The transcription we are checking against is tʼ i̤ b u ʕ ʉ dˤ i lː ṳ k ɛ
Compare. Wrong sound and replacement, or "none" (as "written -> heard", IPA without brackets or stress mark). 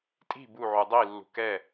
none